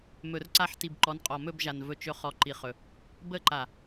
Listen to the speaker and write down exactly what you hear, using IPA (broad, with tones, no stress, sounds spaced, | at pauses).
m ɵ˨ r ǀ a˦˨ ħ t i˨ b ǃ ɔ˨˦ n qʼ ɔ˨ m ɵ˦˨ b ʒ a˨ n v ɵ˦ t͡ʃ ɵ˦ χ ɔ˨ ǃ i˨ χ ɵ˨ | b ə˦˨ ǃ a˨